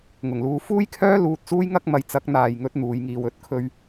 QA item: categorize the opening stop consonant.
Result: aspirated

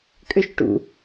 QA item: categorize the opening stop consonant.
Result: ejective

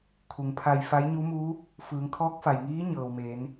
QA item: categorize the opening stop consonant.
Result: aspirated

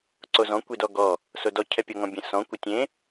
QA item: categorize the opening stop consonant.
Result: click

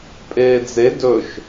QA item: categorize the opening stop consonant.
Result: ejective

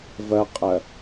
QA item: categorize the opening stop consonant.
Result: ejective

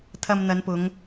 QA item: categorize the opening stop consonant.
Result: aspirated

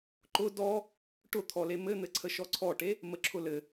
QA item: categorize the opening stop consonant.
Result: click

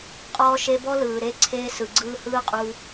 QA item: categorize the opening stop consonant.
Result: ejective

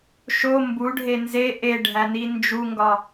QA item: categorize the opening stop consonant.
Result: plain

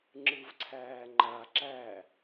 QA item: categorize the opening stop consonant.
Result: click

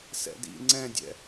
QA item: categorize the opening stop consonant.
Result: plain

